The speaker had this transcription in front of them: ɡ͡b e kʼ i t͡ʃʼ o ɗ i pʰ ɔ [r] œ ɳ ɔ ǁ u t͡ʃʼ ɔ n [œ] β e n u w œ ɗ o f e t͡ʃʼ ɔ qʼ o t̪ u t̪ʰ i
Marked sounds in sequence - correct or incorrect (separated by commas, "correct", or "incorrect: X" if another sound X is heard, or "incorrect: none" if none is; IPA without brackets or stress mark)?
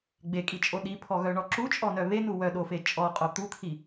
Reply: incorrect: ɣ, correct